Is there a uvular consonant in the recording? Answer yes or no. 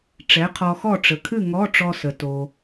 yes